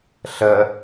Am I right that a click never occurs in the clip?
yes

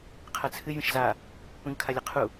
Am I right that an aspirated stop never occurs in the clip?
no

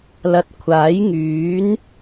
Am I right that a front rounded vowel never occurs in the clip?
no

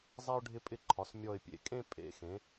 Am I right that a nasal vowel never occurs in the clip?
no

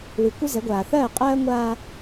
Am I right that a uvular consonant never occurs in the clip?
no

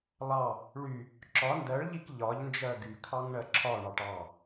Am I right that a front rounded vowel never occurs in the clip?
no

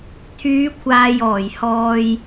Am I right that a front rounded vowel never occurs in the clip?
no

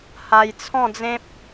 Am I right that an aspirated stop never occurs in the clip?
no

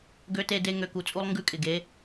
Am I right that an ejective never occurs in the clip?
no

